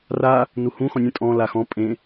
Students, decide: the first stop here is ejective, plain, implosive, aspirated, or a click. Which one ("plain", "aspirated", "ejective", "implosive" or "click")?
ejective